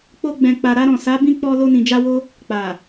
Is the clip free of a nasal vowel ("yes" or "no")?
no